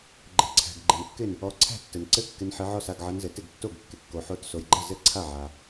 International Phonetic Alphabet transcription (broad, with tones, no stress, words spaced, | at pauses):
ɡ͡ǃɘ˩ǀʰæ̤˩ɡɡ͡ǃɪ˩nkːɪ˥˩n | ɔ˨˦ǀʰæ̤˥˩ tːɘ˩nǀɘ˥˩ kːɪ˨˦nħɪ˨˦ʕɔ˥˩s a˥˩ɡʕɐ˨˦nzɘ˩ tɪ˥˩ɡtːo˥˩ɡ kːɪ˩ kːo˩ħo˨˦tso˩jɡ͡ǃɐ˥˩ zɘ˥˩ǀʰa˥˩ʕa˩